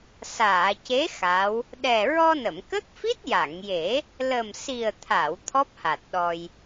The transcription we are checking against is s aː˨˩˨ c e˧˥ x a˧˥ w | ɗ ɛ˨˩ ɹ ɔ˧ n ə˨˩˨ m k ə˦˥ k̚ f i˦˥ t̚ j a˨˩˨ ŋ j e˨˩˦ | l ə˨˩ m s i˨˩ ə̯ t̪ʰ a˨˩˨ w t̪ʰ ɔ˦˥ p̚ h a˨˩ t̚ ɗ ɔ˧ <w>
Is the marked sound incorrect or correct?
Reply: incorrect